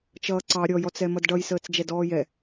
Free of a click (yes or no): no